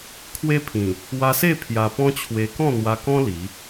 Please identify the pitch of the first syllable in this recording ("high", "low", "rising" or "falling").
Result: high